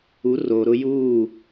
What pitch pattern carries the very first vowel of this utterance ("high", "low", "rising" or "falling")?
rising